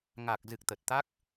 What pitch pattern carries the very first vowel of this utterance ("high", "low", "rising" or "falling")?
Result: low